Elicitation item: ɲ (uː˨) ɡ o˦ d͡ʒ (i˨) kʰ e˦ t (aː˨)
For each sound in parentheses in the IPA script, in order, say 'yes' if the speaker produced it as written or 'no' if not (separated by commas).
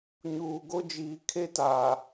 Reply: yes, no, yes